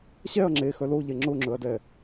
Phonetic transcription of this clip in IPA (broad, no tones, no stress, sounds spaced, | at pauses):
ɕ ɛ ɐ̯ ŋ͡ǁ e x œ l o ʎ ɛ ŋ͡ǁ ʊ ŋ͡ǁ ɵ ɐ̯ d ɛ